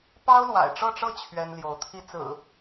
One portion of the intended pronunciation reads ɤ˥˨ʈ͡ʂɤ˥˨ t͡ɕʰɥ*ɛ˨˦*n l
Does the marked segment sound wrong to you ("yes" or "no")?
yes